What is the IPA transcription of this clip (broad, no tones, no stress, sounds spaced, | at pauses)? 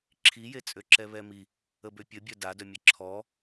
ǁʰ i j e t͡sʼ ø ǁ ɛ β ɛ m i | ə b ø pʲ ə bʲ œ d a d œ mʲ e ǁʰ ɔ